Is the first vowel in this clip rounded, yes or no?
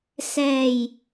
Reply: no